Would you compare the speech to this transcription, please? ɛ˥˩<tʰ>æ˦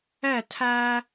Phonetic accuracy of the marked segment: correct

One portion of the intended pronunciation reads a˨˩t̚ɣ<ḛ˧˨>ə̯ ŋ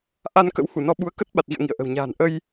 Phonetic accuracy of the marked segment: incorrect: ḭ˧˨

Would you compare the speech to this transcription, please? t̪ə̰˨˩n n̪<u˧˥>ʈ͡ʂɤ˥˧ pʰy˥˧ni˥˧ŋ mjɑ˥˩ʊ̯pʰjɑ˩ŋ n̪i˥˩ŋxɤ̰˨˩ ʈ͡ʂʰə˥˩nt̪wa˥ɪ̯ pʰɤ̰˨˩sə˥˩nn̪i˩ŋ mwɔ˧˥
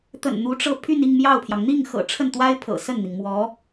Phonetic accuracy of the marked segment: correct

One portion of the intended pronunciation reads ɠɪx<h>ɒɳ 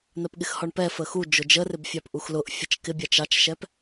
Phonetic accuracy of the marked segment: correct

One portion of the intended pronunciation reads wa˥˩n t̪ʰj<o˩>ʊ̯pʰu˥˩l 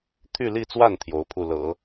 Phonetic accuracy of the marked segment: incorrect: o˧˥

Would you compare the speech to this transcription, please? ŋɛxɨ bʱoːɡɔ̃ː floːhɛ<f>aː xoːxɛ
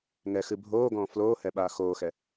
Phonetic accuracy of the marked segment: incorrect: ɓ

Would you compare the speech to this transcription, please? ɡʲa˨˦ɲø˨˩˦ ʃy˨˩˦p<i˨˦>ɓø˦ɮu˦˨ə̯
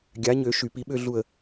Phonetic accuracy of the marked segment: correct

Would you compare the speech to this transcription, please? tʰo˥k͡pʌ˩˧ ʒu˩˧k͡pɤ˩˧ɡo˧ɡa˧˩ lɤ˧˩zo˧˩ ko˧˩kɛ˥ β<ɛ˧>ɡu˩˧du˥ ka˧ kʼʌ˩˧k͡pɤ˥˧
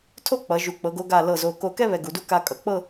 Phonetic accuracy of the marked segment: correct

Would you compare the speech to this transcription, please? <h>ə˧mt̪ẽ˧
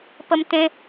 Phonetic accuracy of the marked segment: incorrect: p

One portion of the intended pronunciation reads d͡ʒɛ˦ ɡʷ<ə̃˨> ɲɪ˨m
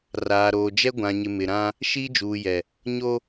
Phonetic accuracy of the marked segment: incorrect: ã˨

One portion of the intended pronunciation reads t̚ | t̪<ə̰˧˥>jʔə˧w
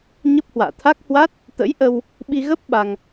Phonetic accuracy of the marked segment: correct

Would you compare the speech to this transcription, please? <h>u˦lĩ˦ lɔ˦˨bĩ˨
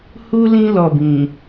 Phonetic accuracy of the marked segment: correct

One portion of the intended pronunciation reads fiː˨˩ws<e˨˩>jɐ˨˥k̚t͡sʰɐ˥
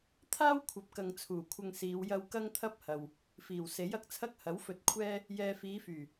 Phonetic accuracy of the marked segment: incorrect: e˨˥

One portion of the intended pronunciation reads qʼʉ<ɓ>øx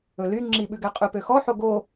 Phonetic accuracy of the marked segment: incorrect: p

